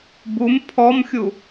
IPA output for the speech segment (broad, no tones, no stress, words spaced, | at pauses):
bum pʰɔmxʲu